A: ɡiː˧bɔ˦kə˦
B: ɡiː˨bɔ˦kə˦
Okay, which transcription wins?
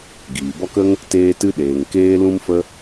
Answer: B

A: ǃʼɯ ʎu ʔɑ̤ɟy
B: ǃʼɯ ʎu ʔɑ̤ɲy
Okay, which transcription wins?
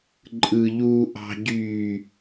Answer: A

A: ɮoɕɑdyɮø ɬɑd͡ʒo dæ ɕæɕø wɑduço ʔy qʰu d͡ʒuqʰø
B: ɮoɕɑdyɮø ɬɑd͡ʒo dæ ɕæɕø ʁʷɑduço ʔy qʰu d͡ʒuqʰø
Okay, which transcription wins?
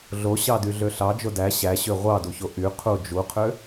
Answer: B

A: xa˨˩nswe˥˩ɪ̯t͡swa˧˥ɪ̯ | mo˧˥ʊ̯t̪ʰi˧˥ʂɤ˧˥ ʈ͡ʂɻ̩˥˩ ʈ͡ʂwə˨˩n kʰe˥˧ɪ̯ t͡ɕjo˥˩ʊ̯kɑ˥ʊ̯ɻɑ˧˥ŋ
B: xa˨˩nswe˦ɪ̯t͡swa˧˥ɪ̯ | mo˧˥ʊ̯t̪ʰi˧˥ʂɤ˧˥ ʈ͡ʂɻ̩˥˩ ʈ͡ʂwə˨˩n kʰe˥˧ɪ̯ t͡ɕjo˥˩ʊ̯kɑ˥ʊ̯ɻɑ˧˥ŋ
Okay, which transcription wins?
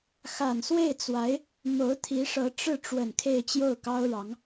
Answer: A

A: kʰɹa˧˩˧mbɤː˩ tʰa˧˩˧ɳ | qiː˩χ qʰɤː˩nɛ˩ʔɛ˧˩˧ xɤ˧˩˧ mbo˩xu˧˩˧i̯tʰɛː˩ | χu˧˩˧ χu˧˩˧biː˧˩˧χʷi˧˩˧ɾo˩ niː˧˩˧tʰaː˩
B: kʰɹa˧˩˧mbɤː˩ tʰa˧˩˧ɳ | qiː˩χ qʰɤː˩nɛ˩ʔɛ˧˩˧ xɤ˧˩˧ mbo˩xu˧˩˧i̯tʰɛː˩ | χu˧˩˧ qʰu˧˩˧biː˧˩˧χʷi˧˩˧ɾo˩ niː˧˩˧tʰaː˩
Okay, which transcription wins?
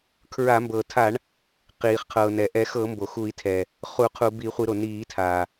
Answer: B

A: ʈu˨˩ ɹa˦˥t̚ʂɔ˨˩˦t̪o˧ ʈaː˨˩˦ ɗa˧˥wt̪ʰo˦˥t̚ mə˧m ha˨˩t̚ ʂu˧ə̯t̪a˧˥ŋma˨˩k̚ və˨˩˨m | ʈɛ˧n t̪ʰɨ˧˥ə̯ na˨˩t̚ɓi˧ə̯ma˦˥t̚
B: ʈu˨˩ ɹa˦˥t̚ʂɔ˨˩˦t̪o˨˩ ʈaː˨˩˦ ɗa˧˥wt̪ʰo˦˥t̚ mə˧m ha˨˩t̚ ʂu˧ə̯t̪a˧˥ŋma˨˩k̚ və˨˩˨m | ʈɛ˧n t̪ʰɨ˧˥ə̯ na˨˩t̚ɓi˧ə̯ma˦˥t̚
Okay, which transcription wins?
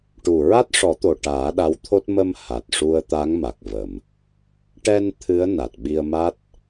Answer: B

